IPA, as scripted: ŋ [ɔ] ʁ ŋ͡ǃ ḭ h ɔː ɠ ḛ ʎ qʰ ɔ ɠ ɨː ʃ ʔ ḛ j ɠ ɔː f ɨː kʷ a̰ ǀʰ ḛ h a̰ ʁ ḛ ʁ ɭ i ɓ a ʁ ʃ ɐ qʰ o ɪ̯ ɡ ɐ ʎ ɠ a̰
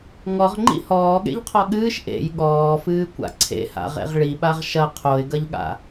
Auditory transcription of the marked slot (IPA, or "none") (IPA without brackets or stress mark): ɔ